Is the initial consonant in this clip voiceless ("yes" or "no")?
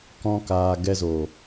yes